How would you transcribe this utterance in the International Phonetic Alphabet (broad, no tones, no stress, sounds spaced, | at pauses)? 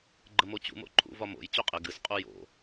ɡ͡ǃ ə m o t͡ɕ ṵ m o̰ ǃʰ ṵ v ɒ m o̰ j t͡ɕ o qʼ ɪ ɡ ɨ s qʼ u j o̰